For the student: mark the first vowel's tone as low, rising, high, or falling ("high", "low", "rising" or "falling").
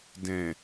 low